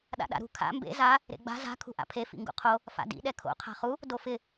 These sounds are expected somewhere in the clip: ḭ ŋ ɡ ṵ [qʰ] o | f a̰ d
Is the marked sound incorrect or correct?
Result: correct